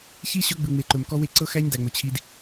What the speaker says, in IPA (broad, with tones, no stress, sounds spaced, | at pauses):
ç i˦ ɕ ɵ˦ ɡ͡b ɯ˨ ŋ͡m e˨ ǃ ɵ˨ m k ɔ˦ w e˦ ǀ ɤ˦ x æ˦ ɲ d æ˨ ŋ͡m ɵ˨ t͡ɕʰ i˦ d